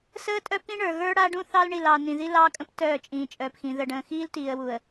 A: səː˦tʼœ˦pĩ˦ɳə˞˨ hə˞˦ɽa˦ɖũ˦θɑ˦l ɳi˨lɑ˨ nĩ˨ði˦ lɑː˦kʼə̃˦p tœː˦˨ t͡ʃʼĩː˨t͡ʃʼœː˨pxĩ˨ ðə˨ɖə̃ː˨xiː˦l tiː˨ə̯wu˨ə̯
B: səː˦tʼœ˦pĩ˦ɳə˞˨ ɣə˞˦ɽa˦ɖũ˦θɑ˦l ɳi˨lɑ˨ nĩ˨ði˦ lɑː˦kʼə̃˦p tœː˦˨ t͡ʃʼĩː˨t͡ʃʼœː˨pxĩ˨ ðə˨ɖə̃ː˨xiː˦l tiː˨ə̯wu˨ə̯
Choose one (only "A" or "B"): B